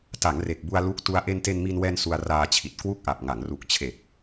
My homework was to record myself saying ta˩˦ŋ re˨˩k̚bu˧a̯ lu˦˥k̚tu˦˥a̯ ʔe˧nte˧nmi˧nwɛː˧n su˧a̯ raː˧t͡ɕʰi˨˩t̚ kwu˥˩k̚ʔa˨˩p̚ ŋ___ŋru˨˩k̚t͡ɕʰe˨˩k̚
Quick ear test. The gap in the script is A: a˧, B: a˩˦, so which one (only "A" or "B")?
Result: B